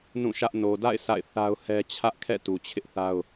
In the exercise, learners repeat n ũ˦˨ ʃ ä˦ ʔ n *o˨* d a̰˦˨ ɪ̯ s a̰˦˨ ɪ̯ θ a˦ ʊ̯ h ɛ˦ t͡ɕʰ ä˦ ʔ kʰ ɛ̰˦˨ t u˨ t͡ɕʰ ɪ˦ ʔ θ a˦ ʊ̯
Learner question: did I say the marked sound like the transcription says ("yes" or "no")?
yes